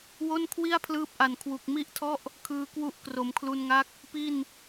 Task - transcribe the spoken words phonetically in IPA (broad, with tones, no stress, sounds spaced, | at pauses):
w o˥˩ n kʰ w i˥˩ a̯ pʰ l ɯː˦˥ p̚ ʔ a˨˩ n kʰ w u˨˩ k̚ m i˥˩ ʔ tʰ ɔ˥˩ ʔ | kʰ ɯː˧ k w u˦˥ ʔ k r o˩˦ m kʰ l u˧ n ŋ a˦˥ k̚ | p i˥˩ n